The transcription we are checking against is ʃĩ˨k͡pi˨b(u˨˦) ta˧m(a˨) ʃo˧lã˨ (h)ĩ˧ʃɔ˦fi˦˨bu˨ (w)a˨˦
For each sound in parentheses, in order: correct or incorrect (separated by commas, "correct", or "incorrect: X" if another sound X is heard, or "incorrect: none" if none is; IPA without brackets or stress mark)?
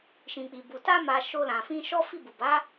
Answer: incorrect: u˨, correct, incorrect: f, incorrect: b